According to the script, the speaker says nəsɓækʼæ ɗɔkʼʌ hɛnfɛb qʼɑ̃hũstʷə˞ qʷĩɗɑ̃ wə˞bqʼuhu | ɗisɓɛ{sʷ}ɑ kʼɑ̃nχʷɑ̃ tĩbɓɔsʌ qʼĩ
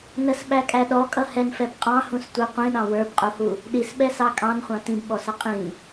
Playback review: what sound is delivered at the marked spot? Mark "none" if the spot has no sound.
s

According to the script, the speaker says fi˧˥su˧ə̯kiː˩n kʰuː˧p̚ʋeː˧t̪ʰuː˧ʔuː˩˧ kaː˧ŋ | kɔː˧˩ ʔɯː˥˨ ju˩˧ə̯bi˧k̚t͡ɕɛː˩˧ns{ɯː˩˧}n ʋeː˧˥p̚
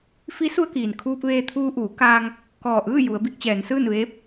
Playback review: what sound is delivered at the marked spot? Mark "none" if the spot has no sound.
ɯː˥˨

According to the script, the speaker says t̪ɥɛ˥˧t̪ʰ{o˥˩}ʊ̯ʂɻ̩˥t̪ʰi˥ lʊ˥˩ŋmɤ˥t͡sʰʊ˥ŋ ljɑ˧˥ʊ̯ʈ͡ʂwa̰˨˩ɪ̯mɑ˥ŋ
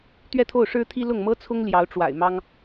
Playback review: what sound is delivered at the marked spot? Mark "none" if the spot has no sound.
o˥˩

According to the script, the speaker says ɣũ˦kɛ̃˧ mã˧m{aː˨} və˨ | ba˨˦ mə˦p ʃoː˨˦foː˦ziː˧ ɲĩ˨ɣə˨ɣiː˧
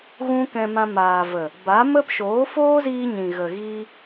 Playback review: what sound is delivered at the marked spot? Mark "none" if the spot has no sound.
aː˨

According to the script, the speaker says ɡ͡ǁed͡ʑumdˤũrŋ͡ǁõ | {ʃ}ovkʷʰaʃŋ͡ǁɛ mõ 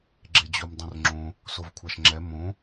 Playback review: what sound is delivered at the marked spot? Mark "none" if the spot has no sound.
s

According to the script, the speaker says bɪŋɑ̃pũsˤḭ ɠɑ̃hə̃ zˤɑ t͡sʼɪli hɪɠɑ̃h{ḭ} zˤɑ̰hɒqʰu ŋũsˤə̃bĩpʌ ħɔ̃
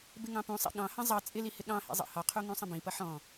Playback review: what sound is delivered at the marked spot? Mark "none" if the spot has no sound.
ḭ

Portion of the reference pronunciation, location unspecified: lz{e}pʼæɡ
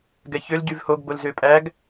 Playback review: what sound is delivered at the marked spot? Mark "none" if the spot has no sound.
ø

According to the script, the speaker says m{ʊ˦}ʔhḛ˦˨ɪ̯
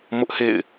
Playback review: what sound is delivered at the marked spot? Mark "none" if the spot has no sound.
ʊ˦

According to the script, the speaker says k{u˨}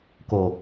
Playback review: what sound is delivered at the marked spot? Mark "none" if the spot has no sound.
o˨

